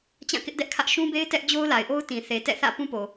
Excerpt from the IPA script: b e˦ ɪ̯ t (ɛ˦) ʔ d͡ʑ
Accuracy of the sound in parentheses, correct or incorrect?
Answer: correct